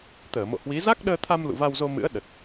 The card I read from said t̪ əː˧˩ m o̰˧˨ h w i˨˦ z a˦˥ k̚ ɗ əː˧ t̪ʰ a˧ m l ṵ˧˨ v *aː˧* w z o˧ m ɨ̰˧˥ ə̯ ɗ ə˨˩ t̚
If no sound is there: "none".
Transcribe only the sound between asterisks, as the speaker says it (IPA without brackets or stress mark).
a˧